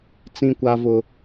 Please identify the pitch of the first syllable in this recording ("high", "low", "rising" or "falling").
high